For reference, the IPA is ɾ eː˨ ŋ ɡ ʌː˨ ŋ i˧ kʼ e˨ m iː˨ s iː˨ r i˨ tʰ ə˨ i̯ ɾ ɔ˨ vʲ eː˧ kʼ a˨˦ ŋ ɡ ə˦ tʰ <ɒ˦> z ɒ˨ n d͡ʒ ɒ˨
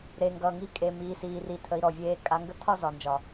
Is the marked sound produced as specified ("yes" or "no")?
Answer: no